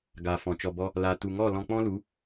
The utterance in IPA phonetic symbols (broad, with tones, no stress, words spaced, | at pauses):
ɡa˨ fɔ̃˨t͡ʃɔ˧bɔ˦ | la˧ tu˨ŋɔ˦˨ lɔ̃˧k͡pɔ̃˦lu˨˦